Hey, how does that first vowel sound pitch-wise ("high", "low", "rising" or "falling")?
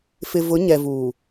low